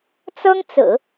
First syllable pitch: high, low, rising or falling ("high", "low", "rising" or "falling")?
high